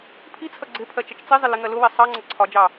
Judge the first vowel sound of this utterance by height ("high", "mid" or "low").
high